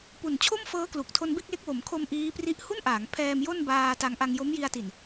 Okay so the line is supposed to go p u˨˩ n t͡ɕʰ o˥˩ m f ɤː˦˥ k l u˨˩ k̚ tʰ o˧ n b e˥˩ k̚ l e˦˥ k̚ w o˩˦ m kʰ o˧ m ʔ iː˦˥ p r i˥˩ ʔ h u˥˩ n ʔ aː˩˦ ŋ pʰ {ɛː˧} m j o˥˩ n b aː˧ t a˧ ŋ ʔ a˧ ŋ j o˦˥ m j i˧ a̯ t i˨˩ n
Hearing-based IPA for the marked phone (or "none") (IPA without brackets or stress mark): ɛː˧